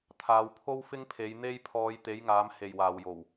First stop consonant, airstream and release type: aspirated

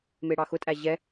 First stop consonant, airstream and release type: ejective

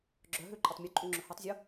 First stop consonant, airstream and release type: click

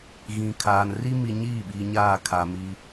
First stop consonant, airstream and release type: aspirated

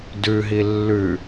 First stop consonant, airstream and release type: plain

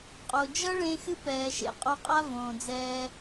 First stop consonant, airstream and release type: ejective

